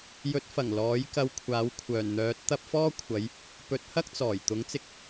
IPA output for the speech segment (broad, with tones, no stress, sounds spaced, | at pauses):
j ɵ˨˥ t̚ f ɐ˨˩ ŋ l ɔː˨˥ j k ɐ˧ w kʷʰ aː˨˥ w kʷʰ œː˨˩ n n̪ œː˨˥ t̚ t̪ ɐ˧ p̚ f ɔː˥ kʷʰ ɐ˨˧ j | p ɵ˨˥ t̚ h ɐ˥ k̚ t͡s ɔː˨˩ j t̪ ʊ˨˥ ŋ t͡s ɪ˧ k̚